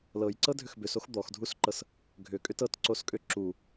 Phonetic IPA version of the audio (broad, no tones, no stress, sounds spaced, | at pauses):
l ɤ j ǀ ɤ dʱ ʏ x b ʏ s o x d̪ ɔ x dʱ u s ǃ ɤ s | ɡʱ ʏ kʼ ʏ t ɤ t ǀ o s kʼ ʏ ǁ u